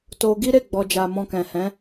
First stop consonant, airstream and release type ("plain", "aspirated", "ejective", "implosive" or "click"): plain